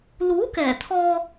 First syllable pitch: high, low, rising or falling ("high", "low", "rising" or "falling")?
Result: rising